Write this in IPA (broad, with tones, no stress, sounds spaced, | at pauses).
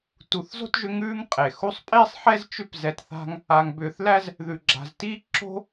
t u˨ θ z o̤˥ t ʒ ʏ˦ ŋ ʉː˦ ŋ qʼ e˩ x u˦ sˤ pʼ iː˥ sˤ ħ ɛ˥ z t͡ʃ ʏ˦ p z ɛ˨ t θ a̤˦ ŋ | a˨ ŋ b ʏː˨ θ l æ˥ z | ð ʉ˨ ɡ͡ǁ a̤˨ z t iː˥ ǁ o̤˥